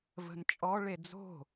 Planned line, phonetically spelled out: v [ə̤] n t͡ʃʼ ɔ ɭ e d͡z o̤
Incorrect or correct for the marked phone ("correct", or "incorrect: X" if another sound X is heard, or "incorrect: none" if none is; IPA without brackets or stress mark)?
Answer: correct